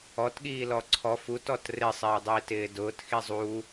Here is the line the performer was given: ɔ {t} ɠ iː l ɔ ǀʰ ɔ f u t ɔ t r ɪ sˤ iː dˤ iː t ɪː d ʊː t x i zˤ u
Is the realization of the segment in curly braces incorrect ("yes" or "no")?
no